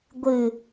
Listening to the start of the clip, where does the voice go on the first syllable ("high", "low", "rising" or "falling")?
low